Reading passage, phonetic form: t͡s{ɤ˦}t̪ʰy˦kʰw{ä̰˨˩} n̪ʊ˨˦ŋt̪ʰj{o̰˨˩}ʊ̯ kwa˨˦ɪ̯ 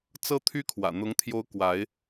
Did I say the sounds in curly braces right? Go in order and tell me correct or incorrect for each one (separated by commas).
correct, correct, incorrect